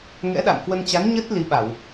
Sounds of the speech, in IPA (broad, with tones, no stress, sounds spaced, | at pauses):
ŋ ɛ̰˧˥ ɗ a̰˧˨ m k w ə˧ n t͡ɕ a˨˦ n ɲ ə˦˥ t̚ l i˨˦ ɓ a˧˩˨ w